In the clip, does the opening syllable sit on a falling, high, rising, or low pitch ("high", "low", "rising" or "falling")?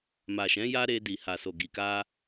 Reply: low